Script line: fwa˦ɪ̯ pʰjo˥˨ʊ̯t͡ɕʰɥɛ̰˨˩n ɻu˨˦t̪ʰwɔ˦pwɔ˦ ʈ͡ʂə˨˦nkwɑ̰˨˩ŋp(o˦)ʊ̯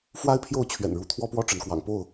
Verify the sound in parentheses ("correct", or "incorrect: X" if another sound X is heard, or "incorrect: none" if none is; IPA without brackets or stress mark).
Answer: incorrect: o˥˨